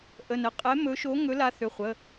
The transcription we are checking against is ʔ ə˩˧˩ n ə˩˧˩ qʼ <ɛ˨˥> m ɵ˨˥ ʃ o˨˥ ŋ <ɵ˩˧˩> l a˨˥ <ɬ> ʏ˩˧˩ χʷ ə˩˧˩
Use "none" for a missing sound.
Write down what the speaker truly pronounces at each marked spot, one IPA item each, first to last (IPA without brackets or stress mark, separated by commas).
ɛ˨˥, ɵ˨˥, θ